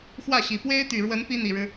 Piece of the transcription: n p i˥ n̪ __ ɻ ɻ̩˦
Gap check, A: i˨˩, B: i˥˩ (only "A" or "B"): A